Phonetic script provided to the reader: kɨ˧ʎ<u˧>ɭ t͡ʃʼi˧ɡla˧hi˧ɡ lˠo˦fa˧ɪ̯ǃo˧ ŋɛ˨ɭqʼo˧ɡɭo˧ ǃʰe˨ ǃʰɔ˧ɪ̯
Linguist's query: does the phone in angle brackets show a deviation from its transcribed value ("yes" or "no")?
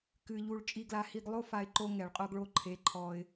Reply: no